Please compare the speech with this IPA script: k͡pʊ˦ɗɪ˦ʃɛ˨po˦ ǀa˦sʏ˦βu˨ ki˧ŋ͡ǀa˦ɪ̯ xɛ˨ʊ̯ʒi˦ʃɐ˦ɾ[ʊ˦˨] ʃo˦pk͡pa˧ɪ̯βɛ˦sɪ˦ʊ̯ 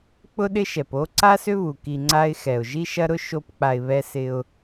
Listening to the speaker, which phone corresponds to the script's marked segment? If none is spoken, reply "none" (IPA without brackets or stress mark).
ʊ˦